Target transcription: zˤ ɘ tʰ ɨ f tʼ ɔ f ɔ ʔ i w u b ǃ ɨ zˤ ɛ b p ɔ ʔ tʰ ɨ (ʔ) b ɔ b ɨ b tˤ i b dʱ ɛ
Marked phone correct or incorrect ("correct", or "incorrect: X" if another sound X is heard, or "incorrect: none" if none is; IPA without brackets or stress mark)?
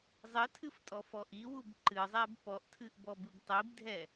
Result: correct